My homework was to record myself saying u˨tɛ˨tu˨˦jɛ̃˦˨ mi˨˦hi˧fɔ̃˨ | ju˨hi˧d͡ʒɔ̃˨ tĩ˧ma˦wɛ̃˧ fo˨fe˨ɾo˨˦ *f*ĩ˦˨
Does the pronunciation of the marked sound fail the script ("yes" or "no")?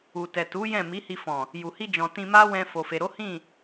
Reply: yes